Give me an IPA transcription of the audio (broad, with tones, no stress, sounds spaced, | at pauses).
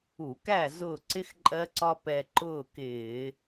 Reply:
u˧˩˧ k æ˥˨ z ʊː˧˩ ǀ ɪ˧ x ǃʼ ɜ˧ ǀ ɒ˧ p ɛ˧ ǃ ʊː˥˨ k ɪː˧˩˧